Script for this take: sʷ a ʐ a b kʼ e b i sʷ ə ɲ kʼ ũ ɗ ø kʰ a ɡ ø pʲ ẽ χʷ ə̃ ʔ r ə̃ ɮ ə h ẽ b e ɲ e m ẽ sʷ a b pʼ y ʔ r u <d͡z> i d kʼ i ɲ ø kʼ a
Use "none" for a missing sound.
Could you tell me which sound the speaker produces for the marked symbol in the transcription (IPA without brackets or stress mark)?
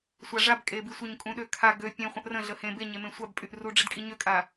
ɖ͡ʐ